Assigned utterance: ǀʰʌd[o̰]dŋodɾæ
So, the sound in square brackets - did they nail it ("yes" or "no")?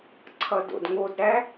yes